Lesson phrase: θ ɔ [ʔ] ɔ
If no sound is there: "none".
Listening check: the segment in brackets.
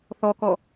k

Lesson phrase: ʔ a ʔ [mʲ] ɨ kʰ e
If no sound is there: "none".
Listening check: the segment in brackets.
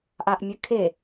mʲ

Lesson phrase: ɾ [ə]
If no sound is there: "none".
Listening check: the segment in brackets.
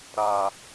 a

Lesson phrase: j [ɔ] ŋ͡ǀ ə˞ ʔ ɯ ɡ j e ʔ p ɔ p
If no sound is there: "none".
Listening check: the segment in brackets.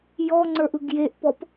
ɔ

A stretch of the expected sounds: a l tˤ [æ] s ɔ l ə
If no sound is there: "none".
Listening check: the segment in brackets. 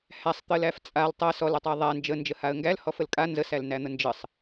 æ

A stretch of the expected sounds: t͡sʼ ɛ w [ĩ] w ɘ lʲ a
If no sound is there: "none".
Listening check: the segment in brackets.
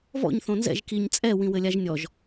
ĩ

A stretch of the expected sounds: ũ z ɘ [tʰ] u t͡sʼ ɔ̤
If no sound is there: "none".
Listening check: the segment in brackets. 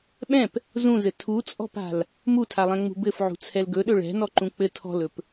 tʰ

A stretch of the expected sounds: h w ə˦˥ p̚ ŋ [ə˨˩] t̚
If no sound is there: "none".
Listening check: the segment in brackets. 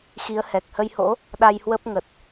ə˨˩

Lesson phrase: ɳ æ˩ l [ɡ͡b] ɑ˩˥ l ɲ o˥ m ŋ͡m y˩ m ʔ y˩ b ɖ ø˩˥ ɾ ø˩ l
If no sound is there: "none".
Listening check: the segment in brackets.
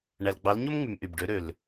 ɡ͡b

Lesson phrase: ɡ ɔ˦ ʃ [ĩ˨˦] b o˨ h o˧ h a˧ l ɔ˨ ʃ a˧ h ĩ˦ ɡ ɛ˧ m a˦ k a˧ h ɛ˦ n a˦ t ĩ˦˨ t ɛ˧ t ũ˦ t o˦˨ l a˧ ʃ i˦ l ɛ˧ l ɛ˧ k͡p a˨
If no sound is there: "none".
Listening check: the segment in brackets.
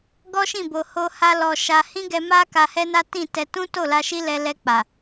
ĩ˦˨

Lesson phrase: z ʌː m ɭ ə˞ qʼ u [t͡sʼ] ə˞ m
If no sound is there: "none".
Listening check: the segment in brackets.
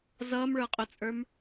t͡sʼ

